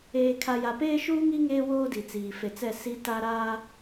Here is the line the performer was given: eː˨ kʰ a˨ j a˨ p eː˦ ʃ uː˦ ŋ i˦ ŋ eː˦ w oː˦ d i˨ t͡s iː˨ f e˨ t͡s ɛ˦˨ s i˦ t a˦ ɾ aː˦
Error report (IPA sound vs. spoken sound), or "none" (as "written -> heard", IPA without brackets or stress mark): none